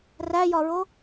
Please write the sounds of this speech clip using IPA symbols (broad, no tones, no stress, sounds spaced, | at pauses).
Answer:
r æ j ɒ ɹ o